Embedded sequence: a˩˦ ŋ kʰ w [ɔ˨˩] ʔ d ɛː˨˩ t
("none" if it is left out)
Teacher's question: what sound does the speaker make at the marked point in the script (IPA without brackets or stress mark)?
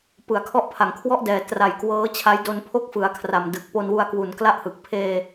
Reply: ɔ˥˩